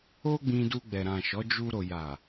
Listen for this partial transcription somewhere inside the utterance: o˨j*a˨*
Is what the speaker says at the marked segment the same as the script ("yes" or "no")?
yes